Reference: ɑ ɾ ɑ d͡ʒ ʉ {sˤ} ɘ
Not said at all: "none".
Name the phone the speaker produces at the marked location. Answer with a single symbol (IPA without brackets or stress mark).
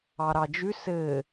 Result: s